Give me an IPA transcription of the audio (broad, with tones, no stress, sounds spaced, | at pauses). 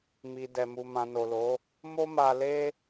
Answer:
m i˨ d ɛ˨ m u˨ m ã˨ n o˨ l o˨˦ | m o˦ m a˧ l e˦